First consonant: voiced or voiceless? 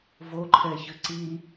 voiced